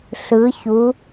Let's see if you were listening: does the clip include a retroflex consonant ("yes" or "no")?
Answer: no